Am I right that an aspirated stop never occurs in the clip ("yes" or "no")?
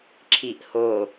no